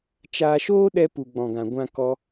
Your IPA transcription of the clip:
t͡ʃ aː˧ ʃ oː˦ ɗ ɛ˧ p u˨ ɡ͡b ɔ̃˨ ɡ ã˨ ɡʷ ã˦ k ɔ˦

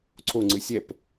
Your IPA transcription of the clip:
ǀʰ o ŋ͡ǀ ɨ sʲ ɛ p

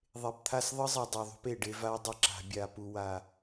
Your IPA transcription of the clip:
ðˤ e˨ p t̪ʰ a˦˨ s ðˤ ɯ˦ zˤ ɯ˨ dˤ u˨ ðˤ ṳ˦ p e˨ ɖ e˦ v a˦ w dˤ ə˦˨ ǁ a̤˨ bʲ a˨ p u˨ w a˨

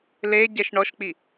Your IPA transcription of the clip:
l e ɟ ɛ ʃ ɳ ɔ ʃ k͡p i

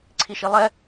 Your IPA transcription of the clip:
ǀʰ i ʃ i lˠ ɛ

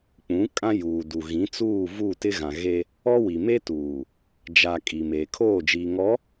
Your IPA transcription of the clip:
k͡p ũ˨˦ kʼ ã˦ j uː˨ d u˨ ɣ ĩ˨˦ t͡s uː˦˨ v u˦˨ t ɪ˦ ɣ ã˨ ɣ e˦ | ɔ˦ w i˨ m e˦ t uː˨ | d͡ʒ a˨ kʼ i˨ m eː˨ kʰ oː˦˨ d͡ʒ iː˨ ŋ ɔ˨˦

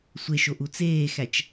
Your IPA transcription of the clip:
sʷ e ʃ o ʔ u t͡s eː x æ t͡ʃ

